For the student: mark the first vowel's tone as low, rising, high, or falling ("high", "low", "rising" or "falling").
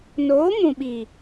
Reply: rising